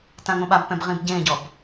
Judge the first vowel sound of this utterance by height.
low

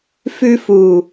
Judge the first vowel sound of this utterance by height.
high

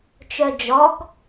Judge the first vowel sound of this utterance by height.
mid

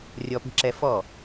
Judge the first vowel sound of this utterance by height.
mid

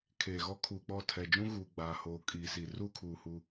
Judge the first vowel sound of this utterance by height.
mid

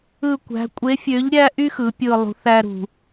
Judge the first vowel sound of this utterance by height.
high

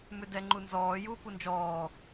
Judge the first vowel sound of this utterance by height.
high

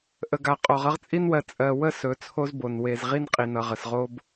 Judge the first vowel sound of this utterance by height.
mid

